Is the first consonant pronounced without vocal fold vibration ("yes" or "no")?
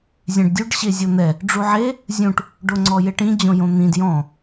no